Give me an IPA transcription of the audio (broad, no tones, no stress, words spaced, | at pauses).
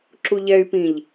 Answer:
ǁuʎɛy̯pĩʎ